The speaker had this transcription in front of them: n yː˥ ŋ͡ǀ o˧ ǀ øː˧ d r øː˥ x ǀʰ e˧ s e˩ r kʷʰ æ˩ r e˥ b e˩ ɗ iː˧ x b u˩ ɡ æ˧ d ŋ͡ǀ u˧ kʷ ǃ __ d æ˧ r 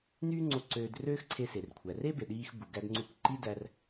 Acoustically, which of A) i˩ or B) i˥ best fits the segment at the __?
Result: B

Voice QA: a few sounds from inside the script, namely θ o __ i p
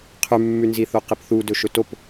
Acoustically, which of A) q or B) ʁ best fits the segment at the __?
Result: A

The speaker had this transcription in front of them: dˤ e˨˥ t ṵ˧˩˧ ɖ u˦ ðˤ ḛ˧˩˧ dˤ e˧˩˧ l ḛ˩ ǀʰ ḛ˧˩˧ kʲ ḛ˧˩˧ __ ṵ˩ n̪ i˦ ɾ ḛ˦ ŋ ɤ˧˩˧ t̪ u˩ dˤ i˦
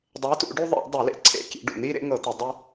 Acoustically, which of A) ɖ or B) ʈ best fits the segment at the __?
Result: A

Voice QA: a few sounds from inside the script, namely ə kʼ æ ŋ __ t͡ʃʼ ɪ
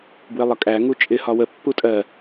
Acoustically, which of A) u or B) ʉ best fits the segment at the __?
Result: A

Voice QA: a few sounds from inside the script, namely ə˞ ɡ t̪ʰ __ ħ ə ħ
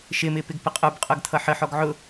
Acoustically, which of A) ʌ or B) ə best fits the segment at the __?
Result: A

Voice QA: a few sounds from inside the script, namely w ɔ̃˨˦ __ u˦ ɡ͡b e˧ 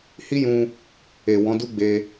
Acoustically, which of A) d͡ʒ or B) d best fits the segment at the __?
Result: B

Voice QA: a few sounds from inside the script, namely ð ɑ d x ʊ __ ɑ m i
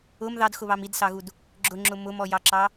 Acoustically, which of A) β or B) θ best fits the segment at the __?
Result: A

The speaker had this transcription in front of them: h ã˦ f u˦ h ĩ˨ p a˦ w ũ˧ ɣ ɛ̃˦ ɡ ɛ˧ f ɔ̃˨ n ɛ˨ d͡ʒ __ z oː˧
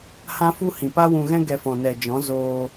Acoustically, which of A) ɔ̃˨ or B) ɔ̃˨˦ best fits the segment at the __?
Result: B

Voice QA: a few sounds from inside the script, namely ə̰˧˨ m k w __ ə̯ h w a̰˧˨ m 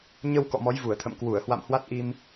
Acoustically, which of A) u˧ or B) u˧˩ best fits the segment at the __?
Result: B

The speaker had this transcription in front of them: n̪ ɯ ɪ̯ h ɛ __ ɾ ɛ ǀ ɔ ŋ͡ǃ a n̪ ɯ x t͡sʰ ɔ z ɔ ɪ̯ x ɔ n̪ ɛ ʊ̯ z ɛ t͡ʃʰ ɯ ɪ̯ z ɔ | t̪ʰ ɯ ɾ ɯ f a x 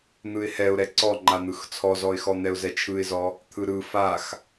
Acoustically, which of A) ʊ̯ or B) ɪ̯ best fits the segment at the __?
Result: A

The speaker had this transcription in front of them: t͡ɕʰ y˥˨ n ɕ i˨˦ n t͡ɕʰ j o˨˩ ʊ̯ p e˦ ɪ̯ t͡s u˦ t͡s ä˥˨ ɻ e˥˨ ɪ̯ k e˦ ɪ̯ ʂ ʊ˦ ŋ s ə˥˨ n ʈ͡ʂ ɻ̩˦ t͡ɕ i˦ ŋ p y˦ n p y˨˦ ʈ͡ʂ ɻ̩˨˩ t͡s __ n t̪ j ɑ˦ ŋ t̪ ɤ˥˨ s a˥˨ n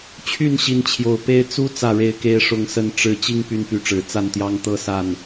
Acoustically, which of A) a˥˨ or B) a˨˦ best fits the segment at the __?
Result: A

